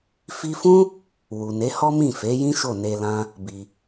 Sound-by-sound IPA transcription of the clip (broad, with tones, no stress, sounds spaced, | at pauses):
f i˧ f ũ˦ | w u˨ n e˨˦ h ɔ˦ m ĩ˦˨ f e˨˦ j ĩ˦ ʃ o˦˨ n e˧ l ã˦ | b i˧